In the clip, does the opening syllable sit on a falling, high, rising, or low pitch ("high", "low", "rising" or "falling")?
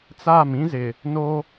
falling